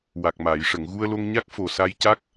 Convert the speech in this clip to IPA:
w a˨˩ k̚ m aː˨˩˨ j ʂ ə˨˩˨ ŋ ɣ u˧ ə̯ l o˧ ŋ ɲ a˦˥ k̚ f o˨˩ s a˧ j c a˦˥ k̚

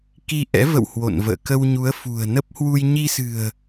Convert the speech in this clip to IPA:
k i˧ ʔ ɛ̰˧˥ v ə̰˧˨ w h w o̰˧˨ n v ə̰ː˧˨ k ə˧ w ɲ u˨˦ ə̯ f ṳ˨˩ ə̯ n ə˦˥ p̚ h w u˧ j ɲ i˧ s ɨ̤˨˩ ə̯

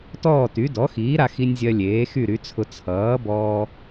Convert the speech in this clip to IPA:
t ɔː˥˨ t y˩˥ d ɔ˩˥ x iː˩˥ ɾ a˧ x i˧ nʲ zʲ ɜ˧ lʲ eː˩˥ x y˥˨ ɾ y˩˥ t͡sʰ ʊ˧ t͡sʰ ʌː˩˥ b ɔː˧

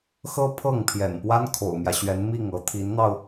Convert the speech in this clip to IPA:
x ɤ˥ pʰ ɤ˥˩ ŋ pʰ j ɛ̰˨˩ n p w a˥ n kʰ o̰˨˩ ʊ̯ m j ä˦ ɕ ɥ ɛ˧˥ n m i˥˩ ŋ ɤ˧˥ t̪ʰ i˧˥ n n̪ ɑ˧ ʊ̯

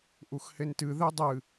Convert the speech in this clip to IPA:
ʔ u x h e n t ɨ ð e dˤ ɨ

